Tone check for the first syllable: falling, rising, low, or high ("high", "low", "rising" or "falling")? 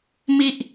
low